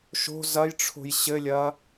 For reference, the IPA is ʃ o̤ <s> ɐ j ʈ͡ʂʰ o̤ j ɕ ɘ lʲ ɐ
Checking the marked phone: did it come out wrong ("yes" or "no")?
yes